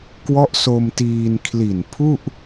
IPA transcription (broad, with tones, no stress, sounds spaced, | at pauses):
k w ɔ˦˥ ʔ s o˧ m t iː˧ n kʰ l i˨˩ n pʰ u˥˩ ʔ